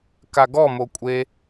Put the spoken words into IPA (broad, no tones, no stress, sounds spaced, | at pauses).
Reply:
k a ɡ ɔ m o kʷʼ e